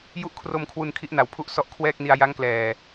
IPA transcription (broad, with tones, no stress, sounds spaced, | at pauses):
j u˦˥ ʔ kʰ r o˧ m kʰ w u˧ n kʰ i˦˥ ʔ n a˨˩ w pʰ u˥˩ ʔ s ɔ˥˩ ʔ kʰ w ɛː˥˩ k̚ n i˧ a̯ j a˦˥ ŋ k l ɛː˨˩